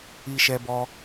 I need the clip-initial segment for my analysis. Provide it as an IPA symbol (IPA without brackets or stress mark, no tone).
i